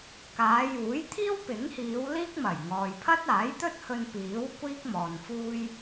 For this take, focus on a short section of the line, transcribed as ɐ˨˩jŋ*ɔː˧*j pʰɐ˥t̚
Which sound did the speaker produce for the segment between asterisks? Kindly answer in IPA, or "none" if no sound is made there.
ɔː˨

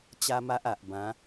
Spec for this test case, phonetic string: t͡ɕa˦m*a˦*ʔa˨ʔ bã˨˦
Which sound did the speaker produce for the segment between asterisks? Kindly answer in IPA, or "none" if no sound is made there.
a˦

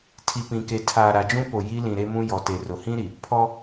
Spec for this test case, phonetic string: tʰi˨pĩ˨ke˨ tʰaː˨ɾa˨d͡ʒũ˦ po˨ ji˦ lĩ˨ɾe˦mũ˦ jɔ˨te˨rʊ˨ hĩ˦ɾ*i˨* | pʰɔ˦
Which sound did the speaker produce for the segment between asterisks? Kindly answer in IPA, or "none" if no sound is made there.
i˨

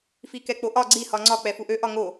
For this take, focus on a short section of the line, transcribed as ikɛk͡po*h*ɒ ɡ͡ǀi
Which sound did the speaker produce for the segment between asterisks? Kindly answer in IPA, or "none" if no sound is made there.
ʔ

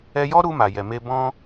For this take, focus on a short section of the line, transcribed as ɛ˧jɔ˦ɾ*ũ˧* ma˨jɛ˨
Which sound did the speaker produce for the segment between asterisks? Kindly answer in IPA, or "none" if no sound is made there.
u˧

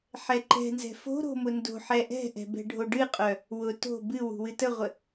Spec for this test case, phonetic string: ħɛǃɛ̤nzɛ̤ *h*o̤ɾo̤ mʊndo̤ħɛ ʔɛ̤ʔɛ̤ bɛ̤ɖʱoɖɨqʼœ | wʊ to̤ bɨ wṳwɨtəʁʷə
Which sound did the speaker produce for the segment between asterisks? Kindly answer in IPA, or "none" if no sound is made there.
f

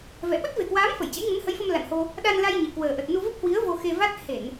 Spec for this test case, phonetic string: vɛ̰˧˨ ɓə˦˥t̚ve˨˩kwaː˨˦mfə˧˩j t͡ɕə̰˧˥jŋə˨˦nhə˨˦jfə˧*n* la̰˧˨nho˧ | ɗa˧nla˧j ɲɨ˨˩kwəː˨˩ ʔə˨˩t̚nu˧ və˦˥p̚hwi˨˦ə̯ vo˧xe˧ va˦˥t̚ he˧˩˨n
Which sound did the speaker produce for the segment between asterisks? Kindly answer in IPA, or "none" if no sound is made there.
m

